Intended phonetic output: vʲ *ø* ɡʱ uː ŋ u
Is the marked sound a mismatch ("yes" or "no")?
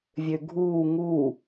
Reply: no